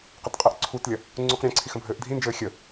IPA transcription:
qətqʼɘʔǀʰutlʲɐ | ŋ͡ǀuqɾʲɛ̃ǀʰix ə̃bʱɘːʔdʱĩnd͡ʒɘː xʲə

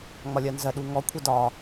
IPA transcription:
ŋ͡mɒlʲɜnzɜ ɗuŋɔ kʷʰedɒ

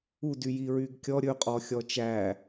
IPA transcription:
udy jiɹyɡkʲɔ ɾʲɵqʼɔxʲɔ t͡ʃæ

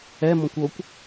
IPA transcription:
ɛmɔ̃kʷ okʷ

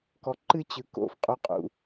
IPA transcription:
kɔ˨ ǃɨ˦t͡ɕɯ˨ ko̰˨fqʼu˨qʼṵ˨

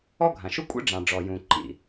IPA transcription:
ɔ˥ɡʱã˩ʃu˥kʷʼḛ˥ ɖ͡ʐɑ̃˩ ɖ͡ʐɔ˩jũ˩ǃḭ˩

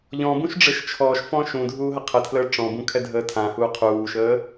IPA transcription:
ʎɔ̃bũʃ ɖ͡ʐɘʃt͡ʃʰɔːʃfɔ̃ ʃũ dʱuːɦəqʰətʰləː ʈ͡ʂɔ̃bũ kʰɛdʱəːtʰãhuː qʰuːʃəː

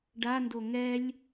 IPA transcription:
ɖando ŋɛlʲ

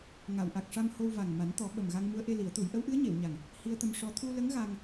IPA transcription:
ŋa˨˩˨wʔa˨˩k̚ʂa˧m ho˧wva˨˩ŋ ma˨˩˦nt̪ɔ˨˩˦ ɓə˨˩mɣa˧ŋ mu˧˥ə̯ʔe˧li˨˩˦ə̯t̪u˨˩˦j ʔə˧˥wʔɨ˧˥ə̯ɲe˨˩˨wɲa˨˩ŋ | hi˧ə̯t̪ə˧mʂɔ˧ t̪ʰu˧lə˧˥ŋ ɣa˧ŋ

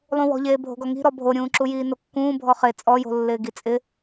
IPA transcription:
lˠũwɔ̤ʎeː bʱo̤ɡɔŋi̤ ɾɔbʱoɾʲũː ǁujiːnokːũː bʱɔχe t͡sʼɔjo̤lːɪː ɡit͡sʼɪ

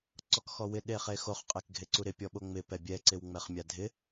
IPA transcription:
ǀɔkxɔwɪ ɗeχexoχ qʼekɡʱeǀuɾɪ pʲɔɓoŋ͡mɪ pɛbʲɛ ǀɪwŋ͡mɛχmʲadʱɪ

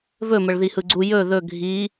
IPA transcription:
vɵməɭ ðihɯɡ͡ǀu jɵ ðɵ ɡʱi

